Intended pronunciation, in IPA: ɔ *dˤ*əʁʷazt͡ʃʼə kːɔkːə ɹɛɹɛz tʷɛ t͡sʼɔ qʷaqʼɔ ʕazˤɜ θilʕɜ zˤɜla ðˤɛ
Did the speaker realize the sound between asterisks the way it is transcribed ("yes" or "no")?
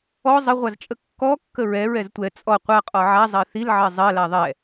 no